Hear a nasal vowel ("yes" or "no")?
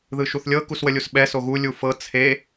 no